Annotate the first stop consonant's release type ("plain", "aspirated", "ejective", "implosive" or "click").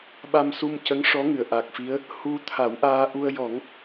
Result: implosive